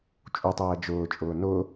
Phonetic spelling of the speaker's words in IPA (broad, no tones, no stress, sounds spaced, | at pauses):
t͡ʃʼ u tˤ ɛː d͡ʒ ʊː t͡ʃʼ ʊː n ʊ